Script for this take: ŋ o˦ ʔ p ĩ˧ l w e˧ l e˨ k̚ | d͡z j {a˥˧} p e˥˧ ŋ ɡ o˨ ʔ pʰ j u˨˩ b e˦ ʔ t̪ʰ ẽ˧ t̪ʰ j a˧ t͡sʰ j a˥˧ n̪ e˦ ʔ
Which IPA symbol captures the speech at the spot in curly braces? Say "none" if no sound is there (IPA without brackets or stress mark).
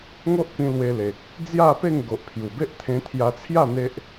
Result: a˥˧